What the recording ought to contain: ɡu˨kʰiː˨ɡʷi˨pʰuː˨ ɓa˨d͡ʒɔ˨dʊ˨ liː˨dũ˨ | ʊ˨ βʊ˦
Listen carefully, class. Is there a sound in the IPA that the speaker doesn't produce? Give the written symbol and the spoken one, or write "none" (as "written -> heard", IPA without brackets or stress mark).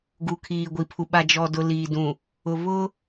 uː˨ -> u˨